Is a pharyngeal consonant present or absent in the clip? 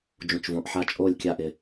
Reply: present